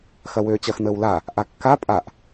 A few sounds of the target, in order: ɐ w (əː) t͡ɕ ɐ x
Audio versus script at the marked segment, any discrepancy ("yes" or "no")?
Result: yes